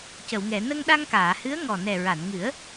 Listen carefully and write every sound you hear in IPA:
c ə˨˩˨ w ŋ ɛ˨˩˨ n ə˧ ŋ ɗ a˧ ŋ k aː˨˩˨ h ɨ˧˥ ə̯ ŋ ɔ˨˩ n ɛ˨˩ ɹ a˨˩˨ n ŋ ɨ˨˩˦ ə̯

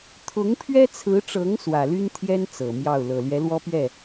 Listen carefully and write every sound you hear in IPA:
t̪ʰ ʊ˧˥ ŋ pʰ ɥ ɛ˥ t͡sʰ ɹ̩˧˥ ʈ͡ʂ ɤ˧˥ ŋ s w ä˨˩ l y˥ n t̪ʰ j ɛ˥ n t͡s ɤ˨˩ m j ɑ˥˩ ʊ̯ l ɤ˨˩ l ɥ ɛ˧˥ l w ɔ˥ p ɥ ɛ˥˩

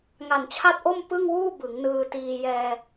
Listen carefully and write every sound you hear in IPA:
ŋ a˨˩ n t͡ɕʰ a˥˩ t̚ ʔ o˥˩ m p ɯ˥˩ ŋ w uː˥˩ b ɯ˩˦ ŋ n ɯː˧ t iː˧ j ɛː˧

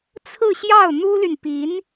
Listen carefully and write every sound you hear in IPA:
t͡sʰ ɹ̩˥˧ ɕ j ɑ˥˩ ʊ̯ n̪ u˥ l y˨ n p i˧˥ n

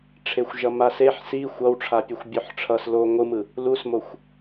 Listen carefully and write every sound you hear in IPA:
ʈ͡ʂʰ e xʷ ʒ ʌ m a s e ħ s i xʷ ʌ w ʈ͡ʂʰ a pʲ o xʷ bʲ o ħ ʈ͡ʂʰ ʌ s l o ŋʷ ɯ m ɯ | l u s m o xʷ

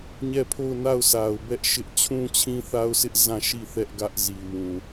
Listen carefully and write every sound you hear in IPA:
ɲ ɛ˦˨ pʰ o˦˨ ʊ̯ n a˦˨ ʊ̯ sʰ a˨ ʊ̯ b ɛ˦ ʔ ʃ ɪ˦ ʔ t͡ɕʰ ũ˦ t͡ɕʰ ĩ˦ θ a˦ ʊ̯ sʰ ɪ˦ ʔ z ã˦˨ ʃ i˦˨ θ ɛ˦ ʔ ɡ ä˦ ʔ z i˨ w ũ˨

